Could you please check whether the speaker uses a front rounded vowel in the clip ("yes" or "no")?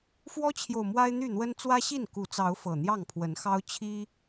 yes